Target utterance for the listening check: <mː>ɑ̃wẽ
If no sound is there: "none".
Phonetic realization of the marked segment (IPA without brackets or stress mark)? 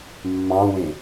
mː